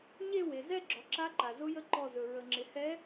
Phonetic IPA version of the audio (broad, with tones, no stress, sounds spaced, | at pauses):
ɲ e˥˧ w e˩ z ɛ˥˧ ɡ͡ǁ ɔ˩ ǁ a˧˥ ǃ a˩ z ʊ˧˥ j ə˧˥ ǃ ɔ˧˩ z ɵ˩ ɹ ə˩ ŋ͡ǁ ɪ˩ h ɛ˧˥